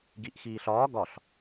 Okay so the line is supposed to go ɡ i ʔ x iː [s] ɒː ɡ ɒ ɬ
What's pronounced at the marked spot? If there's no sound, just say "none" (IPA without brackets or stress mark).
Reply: ɬ